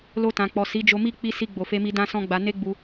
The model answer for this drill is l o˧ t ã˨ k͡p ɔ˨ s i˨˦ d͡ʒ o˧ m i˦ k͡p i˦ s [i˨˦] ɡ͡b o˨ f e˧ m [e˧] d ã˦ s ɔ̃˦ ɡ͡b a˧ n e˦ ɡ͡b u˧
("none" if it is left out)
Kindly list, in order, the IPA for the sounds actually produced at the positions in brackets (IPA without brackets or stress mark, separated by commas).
i˧, i˧